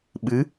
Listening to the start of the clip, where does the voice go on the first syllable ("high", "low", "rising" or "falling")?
rising